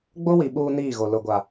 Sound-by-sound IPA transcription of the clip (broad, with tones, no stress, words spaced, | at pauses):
ɡ͡bo˦wi˨ ɓuː˦niː˦˨ɣo˨ lʊ˨ɡʷa˨